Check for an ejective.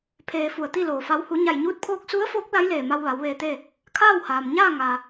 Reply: absent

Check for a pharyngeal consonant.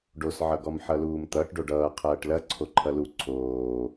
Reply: present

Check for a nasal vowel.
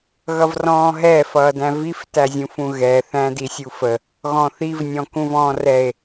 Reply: present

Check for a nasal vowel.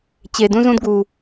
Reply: present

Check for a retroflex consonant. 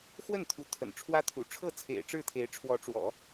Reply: present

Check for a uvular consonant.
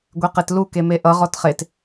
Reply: present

